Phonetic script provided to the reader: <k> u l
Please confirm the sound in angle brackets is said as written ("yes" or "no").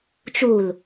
no